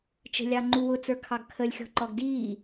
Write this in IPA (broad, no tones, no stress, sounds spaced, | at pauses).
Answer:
t͡ʃ ə̤ lʲ ɑ ŋ͡ǃ u w ʊ t͡s ə˞ kʰ ɑ ɡ kʰ ə lʲ xʲ ɔ̤ ǃ ɔ ɡ d iː